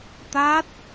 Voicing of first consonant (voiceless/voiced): voiceless